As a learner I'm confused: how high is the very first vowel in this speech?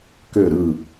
mid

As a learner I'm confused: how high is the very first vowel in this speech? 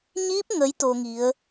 high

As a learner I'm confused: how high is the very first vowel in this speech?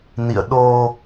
high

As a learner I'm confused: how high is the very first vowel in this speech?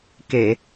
mid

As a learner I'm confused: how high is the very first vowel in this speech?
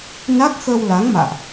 low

